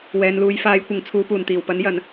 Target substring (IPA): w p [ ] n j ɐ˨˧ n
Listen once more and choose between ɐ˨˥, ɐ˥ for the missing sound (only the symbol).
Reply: ɐ˨˥